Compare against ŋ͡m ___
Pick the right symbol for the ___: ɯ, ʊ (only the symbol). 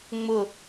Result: ʊ